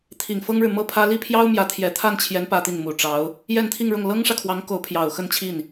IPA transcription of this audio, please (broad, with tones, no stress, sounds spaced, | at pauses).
t̪ʰ i˨˩ ŋ f ɤ˥ ŋ ɻ ɻ̩˨ m ɤ˥˩ pʰ ä˥ l i˥˩ pʰ j ɑ˥ ʊ̯ m j ä˧˥ t̪ʰ j ɛ˨˩ t̪ʰ a˥˩ n t͡ɕʰ j ɛ˧˥ n p ä˥ t̪ i˥˩ n m u˨˩ ʈ͡ʂ ɑ˧˥ ʊ̯ | j ɛ˥˧ n t̪ʰ i˥˧ ŋ ɻ ʊ˥˩ ŋ l ɤ˥ ŋ ʂ ä˨ kʰ w ɑ˧˥ ŋ k o˧˥ ʊ̯ pʰ j ɑ˨˩ ʊ̯ x ə˥˧ n t͡ɕʰ i˥˩ n